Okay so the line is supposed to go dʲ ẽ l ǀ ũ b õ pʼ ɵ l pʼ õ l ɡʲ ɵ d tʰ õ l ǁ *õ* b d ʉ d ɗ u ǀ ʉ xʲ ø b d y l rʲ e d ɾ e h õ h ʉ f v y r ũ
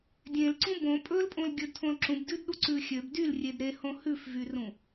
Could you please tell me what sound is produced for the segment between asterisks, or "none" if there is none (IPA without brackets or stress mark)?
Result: ũ